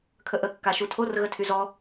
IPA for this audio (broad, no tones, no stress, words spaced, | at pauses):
kʰəʔə kːaʃutʰor ɣətʰyzɔ